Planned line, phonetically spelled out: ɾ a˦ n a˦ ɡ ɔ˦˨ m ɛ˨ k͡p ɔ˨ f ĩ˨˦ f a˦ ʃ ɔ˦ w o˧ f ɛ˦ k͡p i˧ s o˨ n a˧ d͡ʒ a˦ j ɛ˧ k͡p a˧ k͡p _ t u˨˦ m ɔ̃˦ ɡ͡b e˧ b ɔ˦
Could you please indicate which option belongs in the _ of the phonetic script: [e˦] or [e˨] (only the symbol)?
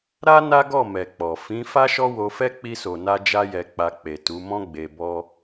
e˨